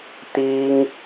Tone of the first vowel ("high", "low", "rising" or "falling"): high